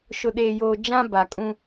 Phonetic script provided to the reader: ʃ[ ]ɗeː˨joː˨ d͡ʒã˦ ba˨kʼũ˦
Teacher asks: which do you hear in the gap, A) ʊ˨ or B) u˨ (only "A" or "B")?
A